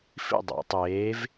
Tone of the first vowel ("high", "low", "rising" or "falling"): falling